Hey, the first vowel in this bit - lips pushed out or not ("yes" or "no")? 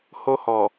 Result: yes